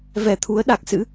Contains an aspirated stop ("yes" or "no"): yes